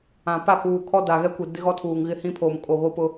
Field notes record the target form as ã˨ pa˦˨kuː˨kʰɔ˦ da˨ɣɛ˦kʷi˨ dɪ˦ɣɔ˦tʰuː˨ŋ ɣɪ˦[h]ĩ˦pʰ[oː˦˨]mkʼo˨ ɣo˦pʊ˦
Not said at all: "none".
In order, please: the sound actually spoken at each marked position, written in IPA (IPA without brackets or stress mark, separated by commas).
h, oː˨